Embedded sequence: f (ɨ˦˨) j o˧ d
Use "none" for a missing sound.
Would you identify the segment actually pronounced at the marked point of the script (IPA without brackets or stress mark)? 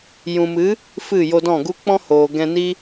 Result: ɨ˦˨